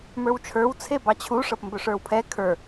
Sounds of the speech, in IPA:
mə˞wt͡ʃʰə˞w t͡sʰebɑt͡ɕʰu ʂɤpmbɵʂə˞wpʰɛ kʰə˞

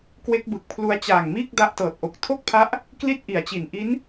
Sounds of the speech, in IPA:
kwe˦˥k̚bɯ˨˩k̚pʰlu˦˥a̯ t͡ɕaː˨˩ŋmiː˥˩k̚ da˦˥ʔtɤː˨˩t̚ʔo˨˩k̚ tʰo˥˩k̚pʰa˦˥ʔ | kli˥˩t̚ ʔi˨˩a̯t͡ɕi˨˩n ʔi˦˥n

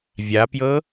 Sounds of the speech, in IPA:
vʲapjɤ

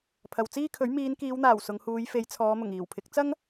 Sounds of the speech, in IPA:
pʰɐ˨w t͡siː˥kʰɵ˨˥ɥ miː˨˧nkiː˨˧wn̪aː˨˩w sʊ˨˧ŋhuː˨˧j fe˨˧jt͡sʰɔː˨˧ mʊ˨˩ŋiː˨˩wpʰɪ˨˥k̚ t͡sɐ˥ŋ

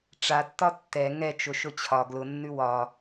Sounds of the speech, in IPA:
ʈ͡ʂatːɒ tːɛ ŋɛt͡ʃʊʃʊ t͡ɕʰɒ ɡlʊnːʉ wɒ

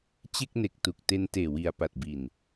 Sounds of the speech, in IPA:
t͡ɕe˥˩k̚ne˨˩k̚tu˨˩k̚te˧n teː˨˩wi˨˩a̯ pa˨˩t̚bi˨˩n

